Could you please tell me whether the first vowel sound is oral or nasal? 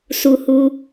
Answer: oral